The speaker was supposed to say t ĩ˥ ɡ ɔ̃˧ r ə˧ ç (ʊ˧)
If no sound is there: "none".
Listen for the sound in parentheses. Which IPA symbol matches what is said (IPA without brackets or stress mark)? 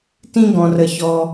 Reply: ɔ˧